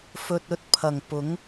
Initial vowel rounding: rounded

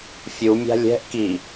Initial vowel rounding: rounded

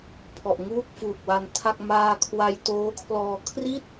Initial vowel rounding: rounded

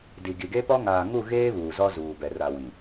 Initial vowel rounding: unrounded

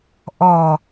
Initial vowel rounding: rounded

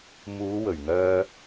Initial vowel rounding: rounded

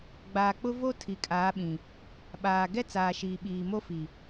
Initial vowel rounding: unrounded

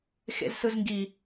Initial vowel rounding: unrounded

